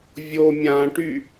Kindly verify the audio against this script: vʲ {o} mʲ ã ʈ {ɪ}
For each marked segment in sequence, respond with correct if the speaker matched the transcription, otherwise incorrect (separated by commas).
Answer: correct, incorrect